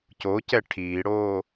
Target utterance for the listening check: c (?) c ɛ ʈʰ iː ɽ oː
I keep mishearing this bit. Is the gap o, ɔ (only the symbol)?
o